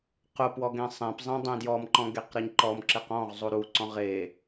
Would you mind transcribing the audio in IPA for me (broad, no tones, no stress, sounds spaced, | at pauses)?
q ʊ p w ɔ ɡ ẽ sˤ ẽ p zˤ ẽ dˤ ẽ d j ɔ m ǃ ɔ̃ ɡ e q ɾ ɤ ɲ ǃ ɔ m ǁ e q ɔ̃ ʁ zˤ u ɾ u ǀ ɔ̃ ʁ e